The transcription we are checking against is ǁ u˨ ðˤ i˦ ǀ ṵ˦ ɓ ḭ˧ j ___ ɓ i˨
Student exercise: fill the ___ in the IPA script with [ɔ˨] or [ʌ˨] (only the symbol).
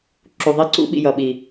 ʌ˨